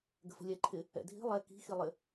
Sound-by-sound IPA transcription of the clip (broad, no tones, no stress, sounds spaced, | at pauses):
ɡ ə̤ f ə̤ lʲ ɛ ǃʰ ɪ | ɛ̰ dʱ i̤ lˠ ɛ k i̤ x i lˠ ɪ